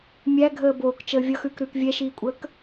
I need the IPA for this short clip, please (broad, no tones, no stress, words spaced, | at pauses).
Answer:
mʲæɡʱəː boːkt͡ʃəː vʲʌxʉːkɾʉːk vʲɛʃiːkʷʼəːk